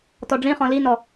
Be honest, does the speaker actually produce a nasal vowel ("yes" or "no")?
yes